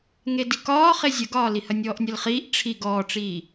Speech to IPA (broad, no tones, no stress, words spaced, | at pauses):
ŋedikɒː χezʲəɡɒːli hɐnʲɔːʔnʲɐlχiːʔ ʈ͡ʂʰi ɡɔːʈ͡ʂiː